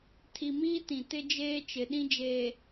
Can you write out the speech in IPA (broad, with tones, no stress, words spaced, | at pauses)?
tʰi˨miː˦ tĩ˨tɪ˦ d͡ʒeː˦ t͡ʃɪ˨ɗĩ˦d͡ʒeː˨